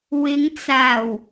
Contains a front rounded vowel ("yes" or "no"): no